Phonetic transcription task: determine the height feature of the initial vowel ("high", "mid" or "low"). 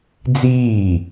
high